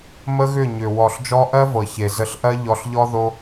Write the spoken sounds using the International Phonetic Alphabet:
m ə˦ ɣ ʏ˦˨ ɲ ʏ˨ w ɔ˨ ɬ d͡ʒ ɔ˧ ʔ ɜ˦ v ɤ˨ ç e˨ z ə˧ ɬ ʔ ɜ˦ ʎ ɔ˧ ɬ ʎ ɔ˦ ð o˦

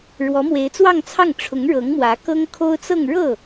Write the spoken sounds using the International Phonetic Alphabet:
ɻ w ɔ˧˥ m w e˧˥ ɪ̯ t͡s w ɑ˥˧ ŋ t͡sʰ ɑ˥˩ ŋ ʈ͡ʂʰ ʊ˧˥ ŋ ɻ ɤ˧˥ ŋ m w ä˧˥ k ɤ˥ ŋ kʰ o˥ ʊ̯ t͡s ɤ˥˧ ŋ ɻ ɤ˥˩

